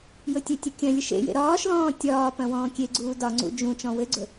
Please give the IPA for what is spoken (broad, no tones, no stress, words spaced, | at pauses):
jɵtʲetʲɵ kʲɐ̃lʲɘʃ ḛjḛ ɾɒːʃlɔ̃ː tʲɒː pɐ̃wɔ̃ːkʲeɡ͡ǀuː dɒŋ͡ǀṵ d͡ʒũ t͡ʃɔ̃wɘɡ͡ǀɵ